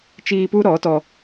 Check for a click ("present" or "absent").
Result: absent